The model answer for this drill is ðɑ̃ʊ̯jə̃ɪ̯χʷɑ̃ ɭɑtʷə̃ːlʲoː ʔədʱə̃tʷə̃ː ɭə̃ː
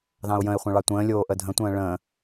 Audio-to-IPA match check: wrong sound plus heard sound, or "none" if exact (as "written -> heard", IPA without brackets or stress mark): none